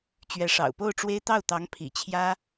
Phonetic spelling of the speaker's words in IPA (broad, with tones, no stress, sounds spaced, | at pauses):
t͡ɕ ɥ ɛ˧˥ ʂ ɑ̰˨˩ ʊ̯ p o˥˩ ʊ̯ ʈ͡ʂ w e˥ ɪ̯ t̪ ɑ˥˩ ʊ̯ t̪ ɑ˧˥ ŋ pʰ ḭ˨˩ t͡ɕʰ j ä˥